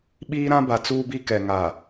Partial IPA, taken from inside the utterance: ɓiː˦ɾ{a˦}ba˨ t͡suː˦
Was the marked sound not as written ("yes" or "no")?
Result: yes